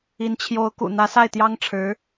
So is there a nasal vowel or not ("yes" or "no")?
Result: no